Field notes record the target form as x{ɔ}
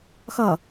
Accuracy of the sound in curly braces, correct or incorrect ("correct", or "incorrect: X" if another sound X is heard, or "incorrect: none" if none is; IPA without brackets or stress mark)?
incorrect: ʌ